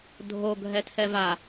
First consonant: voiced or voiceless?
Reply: voiced